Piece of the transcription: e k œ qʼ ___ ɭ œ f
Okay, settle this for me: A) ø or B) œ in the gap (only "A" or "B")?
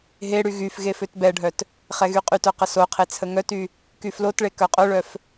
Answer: B